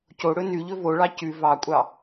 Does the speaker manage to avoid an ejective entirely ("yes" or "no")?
no